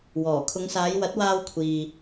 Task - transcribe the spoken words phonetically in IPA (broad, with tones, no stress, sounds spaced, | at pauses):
w ɔː˨˩ kʰ ʊ˨˧ ŋ s aː˨˧ j w ɐ˨˥ t̚ w aː˧ w kʷʰ iː˨